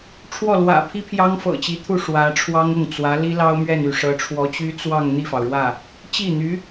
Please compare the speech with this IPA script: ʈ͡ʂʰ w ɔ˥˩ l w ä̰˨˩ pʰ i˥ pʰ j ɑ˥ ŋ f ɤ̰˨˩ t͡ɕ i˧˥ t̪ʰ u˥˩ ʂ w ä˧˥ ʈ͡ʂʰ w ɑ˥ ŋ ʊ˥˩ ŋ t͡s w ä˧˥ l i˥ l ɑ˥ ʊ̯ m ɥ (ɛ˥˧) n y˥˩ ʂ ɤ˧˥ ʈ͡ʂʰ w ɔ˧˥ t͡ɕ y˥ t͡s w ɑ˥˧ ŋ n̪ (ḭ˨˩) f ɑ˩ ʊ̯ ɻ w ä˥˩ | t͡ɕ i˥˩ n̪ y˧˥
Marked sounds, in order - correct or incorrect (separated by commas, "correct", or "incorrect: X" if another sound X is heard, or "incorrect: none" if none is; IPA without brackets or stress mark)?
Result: correct, incorrect: i˥˩